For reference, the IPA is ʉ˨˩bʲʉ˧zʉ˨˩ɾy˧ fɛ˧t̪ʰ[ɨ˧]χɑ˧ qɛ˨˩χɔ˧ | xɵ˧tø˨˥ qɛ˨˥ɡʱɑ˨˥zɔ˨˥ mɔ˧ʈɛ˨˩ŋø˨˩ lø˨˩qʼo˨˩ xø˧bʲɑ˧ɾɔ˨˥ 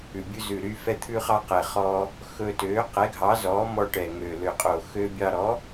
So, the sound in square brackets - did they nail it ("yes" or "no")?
no